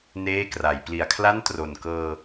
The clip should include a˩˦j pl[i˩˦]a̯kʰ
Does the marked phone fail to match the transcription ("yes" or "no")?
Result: no